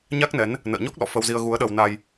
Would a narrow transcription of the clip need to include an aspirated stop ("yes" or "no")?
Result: no